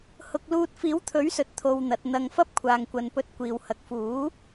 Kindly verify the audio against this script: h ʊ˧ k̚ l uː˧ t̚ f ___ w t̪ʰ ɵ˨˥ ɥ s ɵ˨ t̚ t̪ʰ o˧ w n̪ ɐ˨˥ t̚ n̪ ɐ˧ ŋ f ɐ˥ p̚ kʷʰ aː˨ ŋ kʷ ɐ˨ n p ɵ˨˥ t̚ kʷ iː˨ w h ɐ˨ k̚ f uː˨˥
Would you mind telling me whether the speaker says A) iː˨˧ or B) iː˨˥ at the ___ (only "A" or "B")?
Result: B